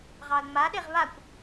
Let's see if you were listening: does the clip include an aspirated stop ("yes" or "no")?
no